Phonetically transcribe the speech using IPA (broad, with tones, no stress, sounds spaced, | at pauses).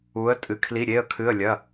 u˩˧ ə̯ tʼ ɨ˩˧ kʰ l i˩˧˩ ɾʲ e˩˧˩ ə̯ kʰ ɨ˩˧˩ ə̯ lʲ ɐ˩˧˩